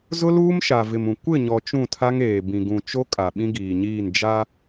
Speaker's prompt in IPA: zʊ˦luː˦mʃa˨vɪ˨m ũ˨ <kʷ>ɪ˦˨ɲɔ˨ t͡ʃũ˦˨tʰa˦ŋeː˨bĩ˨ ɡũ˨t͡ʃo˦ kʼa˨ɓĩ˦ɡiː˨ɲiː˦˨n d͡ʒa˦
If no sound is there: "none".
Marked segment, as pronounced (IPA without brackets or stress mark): kʷ